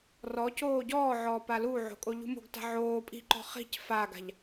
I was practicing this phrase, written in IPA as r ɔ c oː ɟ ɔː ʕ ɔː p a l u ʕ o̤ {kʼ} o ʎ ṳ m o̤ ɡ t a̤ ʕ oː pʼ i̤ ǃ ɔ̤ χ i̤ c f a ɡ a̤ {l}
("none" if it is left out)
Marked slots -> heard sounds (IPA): kʼ, ʎ

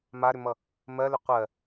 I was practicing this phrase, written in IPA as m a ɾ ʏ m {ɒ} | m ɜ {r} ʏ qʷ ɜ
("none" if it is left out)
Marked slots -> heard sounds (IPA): ʌ, l

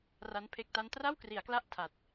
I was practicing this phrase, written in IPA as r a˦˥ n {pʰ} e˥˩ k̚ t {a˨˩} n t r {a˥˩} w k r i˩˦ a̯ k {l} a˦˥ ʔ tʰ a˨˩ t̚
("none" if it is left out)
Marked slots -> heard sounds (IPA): pʰ, a˥˩, a˥˩, l

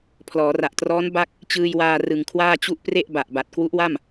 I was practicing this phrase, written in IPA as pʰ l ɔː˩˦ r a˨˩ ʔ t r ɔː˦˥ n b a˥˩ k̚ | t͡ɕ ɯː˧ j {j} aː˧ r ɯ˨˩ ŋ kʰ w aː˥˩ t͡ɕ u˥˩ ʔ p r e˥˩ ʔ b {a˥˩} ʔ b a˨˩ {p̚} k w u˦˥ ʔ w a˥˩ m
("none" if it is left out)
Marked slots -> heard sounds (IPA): w, a˨˩, t̚

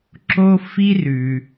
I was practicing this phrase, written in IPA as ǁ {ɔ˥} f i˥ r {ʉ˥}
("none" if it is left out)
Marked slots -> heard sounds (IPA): o˥, ʉ˩

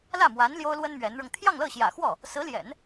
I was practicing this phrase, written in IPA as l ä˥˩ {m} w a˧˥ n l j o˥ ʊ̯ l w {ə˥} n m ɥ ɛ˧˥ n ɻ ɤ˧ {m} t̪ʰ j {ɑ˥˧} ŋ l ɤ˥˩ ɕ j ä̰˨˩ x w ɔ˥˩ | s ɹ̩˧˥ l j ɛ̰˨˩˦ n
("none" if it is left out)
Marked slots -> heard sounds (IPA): m, ə˥, ŋ, ɑ˥˧

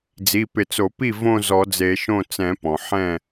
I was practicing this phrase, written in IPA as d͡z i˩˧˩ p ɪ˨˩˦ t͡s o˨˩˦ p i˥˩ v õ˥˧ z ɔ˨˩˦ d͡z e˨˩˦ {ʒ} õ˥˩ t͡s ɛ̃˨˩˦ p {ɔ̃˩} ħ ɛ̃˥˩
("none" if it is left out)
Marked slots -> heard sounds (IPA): ʃ, ɔ̃˩

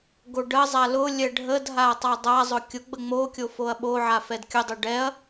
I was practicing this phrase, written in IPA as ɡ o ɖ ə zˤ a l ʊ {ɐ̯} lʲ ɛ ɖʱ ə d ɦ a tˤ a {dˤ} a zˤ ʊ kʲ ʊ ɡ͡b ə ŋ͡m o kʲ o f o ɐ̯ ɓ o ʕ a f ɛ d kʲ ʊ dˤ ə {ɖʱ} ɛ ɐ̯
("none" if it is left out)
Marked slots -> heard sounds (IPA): none, dˤ, ɖ

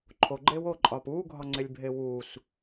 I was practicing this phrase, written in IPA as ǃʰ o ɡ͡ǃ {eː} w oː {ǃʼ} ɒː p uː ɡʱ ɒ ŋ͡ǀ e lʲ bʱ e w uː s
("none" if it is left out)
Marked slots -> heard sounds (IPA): eː, ǃʼ

